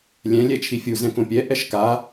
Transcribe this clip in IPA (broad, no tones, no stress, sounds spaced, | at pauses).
lʲ ɛ̃ lʲ ɛ t͡ʃʰ i fʲ u z ɛ̃ k õ pʲ ɛ ʔ ɛ ʃ k a